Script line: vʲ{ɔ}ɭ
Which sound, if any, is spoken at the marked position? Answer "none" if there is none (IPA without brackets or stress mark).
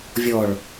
ɔ